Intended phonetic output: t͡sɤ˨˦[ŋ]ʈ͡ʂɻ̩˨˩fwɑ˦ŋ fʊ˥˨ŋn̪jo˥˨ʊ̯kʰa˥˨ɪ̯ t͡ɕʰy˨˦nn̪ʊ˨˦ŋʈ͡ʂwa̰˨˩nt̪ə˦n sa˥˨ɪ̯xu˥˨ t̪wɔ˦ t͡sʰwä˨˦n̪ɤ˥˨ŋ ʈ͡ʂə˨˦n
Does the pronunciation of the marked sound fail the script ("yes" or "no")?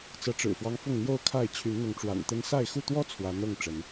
yes